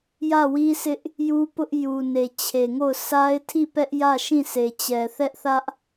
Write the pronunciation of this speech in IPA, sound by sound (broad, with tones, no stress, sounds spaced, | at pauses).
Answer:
j ä˦˨ w i˦ s ɪ˦ ʔ | j u˦ p ʊ˦ ʔ j u˨ n e˨ t͡ɕʰ e˨ ŋ o˦˨ ʊ̯ s a˦ ɪ̯ tʰ i˦˨ p ɛ˦ ʔ j ä˦˨ ʃ ĩ˦˨ sʰ e˨ t͡ɕ ɛ˨ θ ɛ˦ ʔ θ ä˦ ʔ